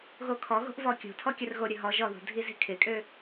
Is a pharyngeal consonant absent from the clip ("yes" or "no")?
yes